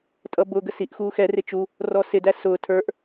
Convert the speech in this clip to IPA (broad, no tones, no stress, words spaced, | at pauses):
tʼʌbʊ ɡəsiʔ xuːxɛ rɪt͡ʃu | rɔsɪ dæsʊː tʰə˞ʔ